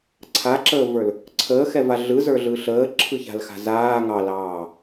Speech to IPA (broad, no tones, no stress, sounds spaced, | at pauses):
ǀʰ a ǁ əː v ə˞ l | ǀʰ əː x ɛ v a ɮ ɯ z ə˞ ɮ ɯ ɬ əː ǁʰ ɯ ç a̤ l x a̤ z aː ŋ ɑ l ɑː